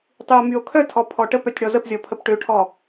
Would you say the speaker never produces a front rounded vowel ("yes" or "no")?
no